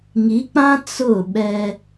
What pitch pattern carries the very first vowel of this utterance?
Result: rising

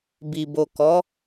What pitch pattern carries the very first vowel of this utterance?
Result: low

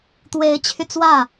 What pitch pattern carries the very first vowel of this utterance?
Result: rising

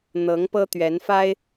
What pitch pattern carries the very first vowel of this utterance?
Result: rising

